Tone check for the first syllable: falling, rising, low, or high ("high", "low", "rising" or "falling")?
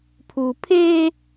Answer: low